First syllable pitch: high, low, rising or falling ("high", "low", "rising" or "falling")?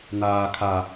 high